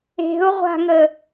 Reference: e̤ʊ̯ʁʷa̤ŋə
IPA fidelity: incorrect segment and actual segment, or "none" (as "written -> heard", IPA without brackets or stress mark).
none